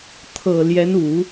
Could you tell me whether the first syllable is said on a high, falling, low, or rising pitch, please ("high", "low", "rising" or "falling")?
low